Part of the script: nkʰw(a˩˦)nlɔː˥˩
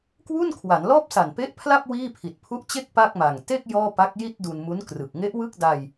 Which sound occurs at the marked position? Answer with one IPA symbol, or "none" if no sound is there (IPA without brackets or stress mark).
a˩˦